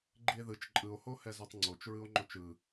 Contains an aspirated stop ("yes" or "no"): no